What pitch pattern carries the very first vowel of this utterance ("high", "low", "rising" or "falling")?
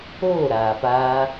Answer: falling